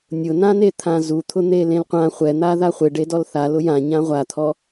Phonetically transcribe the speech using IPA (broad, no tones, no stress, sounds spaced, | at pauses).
nʲ ʊ n ã n e t̪ʰ ã z u t̪ʰ ʊ n̪ e l ẽ l qʷ ã χʷ ɛ n̪ a ð a χʷ e ɖ e d ɔ l θ a l ʊ j ã ɲ ã ʁʷ a t̪ʰ ɔ